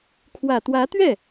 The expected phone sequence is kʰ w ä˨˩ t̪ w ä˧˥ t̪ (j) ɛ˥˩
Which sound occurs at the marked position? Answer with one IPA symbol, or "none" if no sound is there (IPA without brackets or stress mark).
ɥ